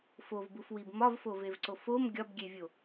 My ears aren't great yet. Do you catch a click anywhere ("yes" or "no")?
yes